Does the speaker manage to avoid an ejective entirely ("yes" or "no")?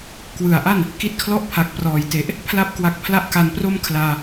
yes